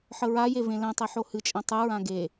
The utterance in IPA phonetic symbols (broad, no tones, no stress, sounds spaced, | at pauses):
ħ ə ɹ a j e v ẽ l ɛ̃ tˤ i ħ o h ɨ t͡ʃʼ ɛ̃ tˤ ɨ ɹ ã ɡ e